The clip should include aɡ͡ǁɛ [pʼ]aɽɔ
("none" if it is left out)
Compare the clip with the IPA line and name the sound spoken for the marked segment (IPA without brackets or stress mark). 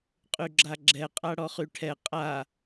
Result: qʼ